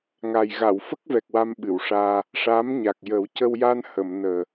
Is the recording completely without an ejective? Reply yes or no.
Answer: yes